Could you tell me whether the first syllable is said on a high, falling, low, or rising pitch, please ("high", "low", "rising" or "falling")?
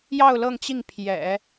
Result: falling